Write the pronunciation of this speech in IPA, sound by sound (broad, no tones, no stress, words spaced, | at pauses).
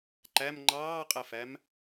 ǃæm ŋ͡ǃɑːqʼəfæm